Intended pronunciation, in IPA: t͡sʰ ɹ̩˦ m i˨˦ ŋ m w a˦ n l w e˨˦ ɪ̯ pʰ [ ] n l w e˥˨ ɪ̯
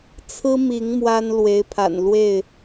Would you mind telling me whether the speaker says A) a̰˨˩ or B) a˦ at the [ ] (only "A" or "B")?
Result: A